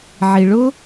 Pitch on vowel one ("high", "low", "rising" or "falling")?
low